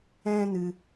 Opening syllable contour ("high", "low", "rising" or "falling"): high